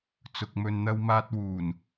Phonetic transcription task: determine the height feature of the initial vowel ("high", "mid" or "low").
high